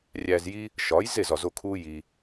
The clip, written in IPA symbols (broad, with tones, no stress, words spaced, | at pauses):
rʲæ˧zji˦ | ʃɒ˨˦jze˦˨zɒ˨zo˧ kʰuː˦ji˧